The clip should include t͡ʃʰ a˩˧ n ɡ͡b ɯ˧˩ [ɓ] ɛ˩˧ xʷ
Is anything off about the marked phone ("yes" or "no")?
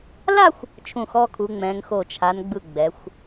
yes